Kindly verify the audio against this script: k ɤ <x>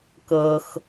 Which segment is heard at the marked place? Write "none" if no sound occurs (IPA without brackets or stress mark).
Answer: x